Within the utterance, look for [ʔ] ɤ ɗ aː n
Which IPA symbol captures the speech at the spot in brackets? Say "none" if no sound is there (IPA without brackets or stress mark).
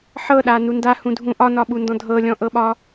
ħ